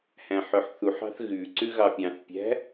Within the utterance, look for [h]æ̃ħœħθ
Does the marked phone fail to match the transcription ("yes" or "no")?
no